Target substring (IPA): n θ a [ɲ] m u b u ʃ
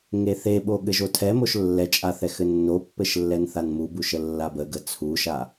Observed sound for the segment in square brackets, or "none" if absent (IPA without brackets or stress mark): n